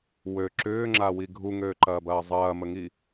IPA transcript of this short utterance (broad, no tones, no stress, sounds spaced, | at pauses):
w ø ǁ ʏː ŋ͡ǁ a w i ɡʱ u ŋ øː ǃ ɐː b ɐː zˤ ɐː m ə ŋ i